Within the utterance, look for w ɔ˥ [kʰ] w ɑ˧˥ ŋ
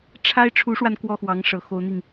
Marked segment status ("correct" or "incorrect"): incorrect